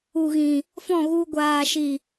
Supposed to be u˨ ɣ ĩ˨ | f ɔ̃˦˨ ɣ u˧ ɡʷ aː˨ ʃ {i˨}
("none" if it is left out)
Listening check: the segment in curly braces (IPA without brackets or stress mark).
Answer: i˨